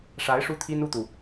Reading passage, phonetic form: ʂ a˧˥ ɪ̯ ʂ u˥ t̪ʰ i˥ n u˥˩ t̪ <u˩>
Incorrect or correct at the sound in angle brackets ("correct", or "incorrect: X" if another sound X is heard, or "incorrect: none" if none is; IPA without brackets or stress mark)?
correct